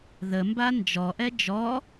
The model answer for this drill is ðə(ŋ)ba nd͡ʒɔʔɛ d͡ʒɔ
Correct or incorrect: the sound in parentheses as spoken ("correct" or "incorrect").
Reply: incorrect